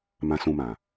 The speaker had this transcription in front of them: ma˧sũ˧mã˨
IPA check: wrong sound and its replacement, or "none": a˧ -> ã˧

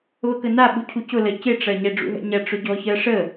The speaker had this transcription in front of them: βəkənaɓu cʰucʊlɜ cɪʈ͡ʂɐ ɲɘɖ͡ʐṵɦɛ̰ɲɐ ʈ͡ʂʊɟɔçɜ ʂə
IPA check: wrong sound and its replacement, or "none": ɘ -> ɛ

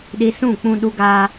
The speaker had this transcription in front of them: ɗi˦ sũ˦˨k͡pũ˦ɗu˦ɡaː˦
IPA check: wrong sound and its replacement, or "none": none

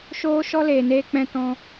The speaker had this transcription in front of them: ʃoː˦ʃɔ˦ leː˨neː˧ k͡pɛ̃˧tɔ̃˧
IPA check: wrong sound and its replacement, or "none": none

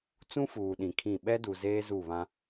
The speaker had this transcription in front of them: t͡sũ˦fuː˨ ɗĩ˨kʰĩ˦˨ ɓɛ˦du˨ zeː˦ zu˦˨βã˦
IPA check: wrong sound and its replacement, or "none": none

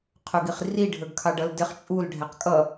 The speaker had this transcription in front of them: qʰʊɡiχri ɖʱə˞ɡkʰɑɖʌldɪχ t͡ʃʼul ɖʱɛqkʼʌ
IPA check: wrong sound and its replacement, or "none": none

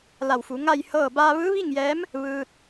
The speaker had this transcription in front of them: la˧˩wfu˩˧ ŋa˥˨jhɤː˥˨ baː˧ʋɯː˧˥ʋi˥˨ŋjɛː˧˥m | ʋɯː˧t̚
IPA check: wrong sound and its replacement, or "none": none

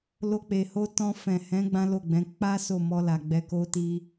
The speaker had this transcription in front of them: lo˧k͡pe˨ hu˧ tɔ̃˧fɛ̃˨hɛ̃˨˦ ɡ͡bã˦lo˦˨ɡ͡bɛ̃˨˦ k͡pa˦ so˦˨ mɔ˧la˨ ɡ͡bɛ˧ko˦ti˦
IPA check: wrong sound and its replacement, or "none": u˧ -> o˧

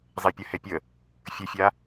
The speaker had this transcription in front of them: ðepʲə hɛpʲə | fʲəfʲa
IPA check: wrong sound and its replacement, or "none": ð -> zˤ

